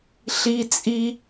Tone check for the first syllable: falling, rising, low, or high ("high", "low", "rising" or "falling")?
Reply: high